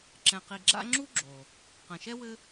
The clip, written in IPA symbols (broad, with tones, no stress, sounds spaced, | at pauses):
ǁ ɛ̃˨ q i˨ ɡ͡ǁ a̰˦ ŋ͡ǁ u˥ ɡ͡ǁ o˩ | q ɐ̃˩ ʃ ɛ˥ w ɘ˦